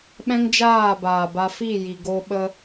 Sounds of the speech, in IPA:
ɓɛ̃˦ŋd͡ʒaː˦˨baː˨ba˧ fi˦˨ji˨ɡo˧ ɓə˦

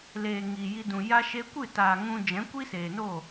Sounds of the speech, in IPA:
leː˨ ŋiː˨ji˧dũ˨ ja˧ʃe˧kʷɨ˦˨taː˨ ŋũ˧ d͡ʒɛ̃˨˦kʷi˦seː˨no˦˨

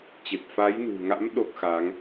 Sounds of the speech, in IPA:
t͡ɕe˨˩p̚fa˨˦jnṳ˨˩ŋa̰˧˥m ɗo˦˥k̚xa˨˦ŋ

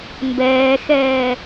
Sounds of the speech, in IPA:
mbɛːxɛː

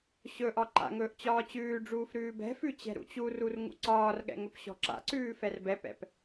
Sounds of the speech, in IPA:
ɕɵʔɒ ǃa̰ŋɵːʔ t͡ɕɒːt͡ɕʉːɖ͡ʐuːf ɾʉːbɛ̤fʉ t͡ɕɛ̤ɾṵt͡ɕurur ŋṵǀɒːrɠɛ̰ ŋɵpɕɔ̤ǁa̰ǀʉː fɛrbɛpɛ̰p

